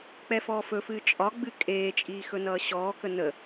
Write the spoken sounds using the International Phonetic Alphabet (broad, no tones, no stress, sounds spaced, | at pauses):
k͡p ɛ f ɔː f ɵ f ɨː t͡ʃʼ ɒ ɡ͡b ɨ kʼ eː t͡ʃʼ iː x ɵ n ʌː ɕ ɔː k ə n ə